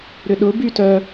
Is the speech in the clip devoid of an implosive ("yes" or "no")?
no